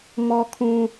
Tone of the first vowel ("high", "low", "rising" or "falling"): high